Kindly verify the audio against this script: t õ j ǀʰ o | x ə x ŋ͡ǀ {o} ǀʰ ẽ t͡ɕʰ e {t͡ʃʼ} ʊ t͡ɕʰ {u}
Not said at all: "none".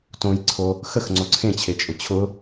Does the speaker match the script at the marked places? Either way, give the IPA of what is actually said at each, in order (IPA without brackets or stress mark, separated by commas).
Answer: o, t͡ʃʼ, ʊ